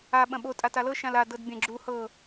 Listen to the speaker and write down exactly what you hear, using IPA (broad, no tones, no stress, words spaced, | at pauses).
a ɓɐ̃ɓo tʼatalɤ ʃãla dɤdbʲɐ̃ ɡ͡ǁu hɤ